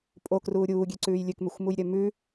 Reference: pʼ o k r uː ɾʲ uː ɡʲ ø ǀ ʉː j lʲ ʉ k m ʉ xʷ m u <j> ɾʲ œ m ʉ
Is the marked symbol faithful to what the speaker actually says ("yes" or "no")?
yes